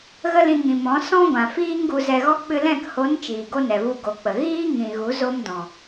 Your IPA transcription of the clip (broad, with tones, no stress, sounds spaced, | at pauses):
ɣ ə˦ l ĩ˧ ŋ ĩ˨ m ɔ̃˨˦ s ɔ̃˦ ɡʷ ã˨ f iː˦ ŋ ɡ u˧ z ɛ˧ ɣ ɔ˦ k͡p ɨ˧ l ɛ̃˦˨ k h o˨˦ n t͡ʃ iː˨ ɡ o˦ n ɛ˨ v u˧ ɡ o˨ k͡p ə˨ ɣ iː˦ ŋ ĩ˨ ɣ u˨˦ z o˦ m d ɔ̃˨